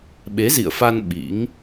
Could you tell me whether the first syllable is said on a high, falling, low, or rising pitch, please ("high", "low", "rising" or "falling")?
rising